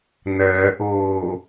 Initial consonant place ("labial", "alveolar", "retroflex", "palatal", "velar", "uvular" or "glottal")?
alveolar